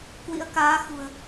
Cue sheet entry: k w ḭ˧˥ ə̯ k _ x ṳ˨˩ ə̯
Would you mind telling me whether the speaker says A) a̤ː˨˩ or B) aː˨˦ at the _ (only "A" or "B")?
B